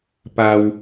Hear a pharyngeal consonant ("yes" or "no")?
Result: no